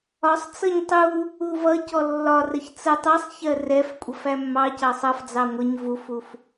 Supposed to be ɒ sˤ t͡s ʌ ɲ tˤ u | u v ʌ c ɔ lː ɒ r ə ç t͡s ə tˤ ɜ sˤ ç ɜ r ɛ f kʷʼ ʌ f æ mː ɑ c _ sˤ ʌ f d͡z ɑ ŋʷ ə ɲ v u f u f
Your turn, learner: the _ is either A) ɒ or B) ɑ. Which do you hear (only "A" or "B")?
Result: B